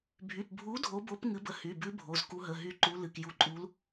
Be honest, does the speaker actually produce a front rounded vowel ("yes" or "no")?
yes